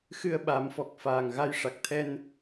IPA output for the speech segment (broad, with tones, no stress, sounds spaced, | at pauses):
x ɨ˧ ə̯ ɓ a˨˩˦ m f ɔ˨˩ k̚ f aː˨˩ ŋ ɣ a˧ j ʂ a˨˩ k̚ t̪ʰ ɛ˧ n